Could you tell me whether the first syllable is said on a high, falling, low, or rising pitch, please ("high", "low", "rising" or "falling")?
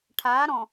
rising